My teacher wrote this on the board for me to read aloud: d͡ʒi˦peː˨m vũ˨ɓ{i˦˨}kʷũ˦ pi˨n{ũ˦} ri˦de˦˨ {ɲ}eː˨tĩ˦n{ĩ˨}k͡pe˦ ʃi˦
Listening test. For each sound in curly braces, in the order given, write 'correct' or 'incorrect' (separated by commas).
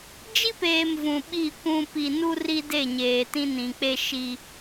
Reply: correct, incorrect, correct, correct